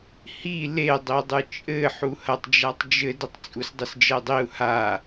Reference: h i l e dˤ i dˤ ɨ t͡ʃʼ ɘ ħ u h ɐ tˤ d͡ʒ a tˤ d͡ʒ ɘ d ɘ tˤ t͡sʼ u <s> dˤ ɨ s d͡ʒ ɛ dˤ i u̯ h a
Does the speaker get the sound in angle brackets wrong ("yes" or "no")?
no